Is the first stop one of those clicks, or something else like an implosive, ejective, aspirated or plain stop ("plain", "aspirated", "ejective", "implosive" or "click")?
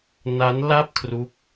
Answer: plain